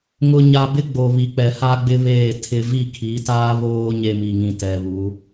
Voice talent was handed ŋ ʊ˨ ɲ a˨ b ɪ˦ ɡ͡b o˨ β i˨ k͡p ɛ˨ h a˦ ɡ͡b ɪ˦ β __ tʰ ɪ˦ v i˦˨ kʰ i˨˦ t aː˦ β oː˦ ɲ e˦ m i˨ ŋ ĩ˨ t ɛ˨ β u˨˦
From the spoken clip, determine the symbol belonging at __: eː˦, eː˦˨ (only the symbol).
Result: eː˦˨